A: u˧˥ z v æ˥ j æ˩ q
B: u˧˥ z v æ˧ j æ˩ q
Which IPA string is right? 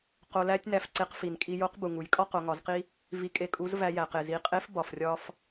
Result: B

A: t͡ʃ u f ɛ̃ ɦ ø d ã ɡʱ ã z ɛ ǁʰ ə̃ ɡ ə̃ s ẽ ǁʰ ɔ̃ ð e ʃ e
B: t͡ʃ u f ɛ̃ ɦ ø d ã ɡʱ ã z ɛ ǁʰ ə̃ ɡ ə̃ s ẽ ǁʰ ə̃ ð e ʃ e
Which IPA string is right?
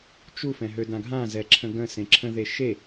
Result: B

